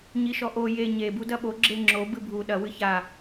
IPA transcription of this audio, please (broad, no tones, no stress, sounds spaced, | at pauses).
ɲ i ʃ ɔ ʔ o j e ɲ e b u d ɐ ɓ o ɡ͡ǁ e ŋ͡ǁ o b ɨ bʱ u ɗ ɐ w ɨ ç a